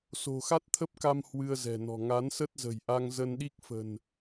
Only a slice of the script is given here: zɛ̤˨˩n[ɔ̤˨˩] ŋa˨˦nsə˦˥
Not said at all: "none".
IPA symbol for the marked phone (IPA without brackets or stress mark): ɔ̤˨˩